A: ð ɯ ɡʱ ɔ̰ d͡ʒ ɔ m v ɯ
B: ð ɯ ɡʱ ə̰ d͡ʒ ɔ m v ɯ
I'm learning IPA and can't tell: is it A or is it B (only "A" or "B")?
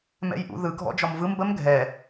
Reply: A